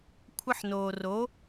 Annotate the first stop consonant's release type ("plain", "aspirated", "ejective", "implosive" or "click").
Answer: aspirated